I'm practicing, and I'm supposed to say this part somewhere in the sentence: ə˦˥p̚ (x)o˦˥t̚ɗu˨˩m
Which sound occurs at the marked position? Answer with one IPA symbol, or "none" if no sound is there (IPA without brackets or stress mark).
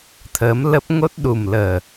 ŋ